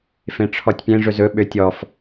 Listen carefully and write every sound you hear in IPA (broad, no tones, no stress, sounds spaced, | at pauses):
f ẽ ʈ͡ʂʰ ɔ tʲ pʲ ẽ ʐ ɵ z ɵ ɓ ø tʲ ɔ f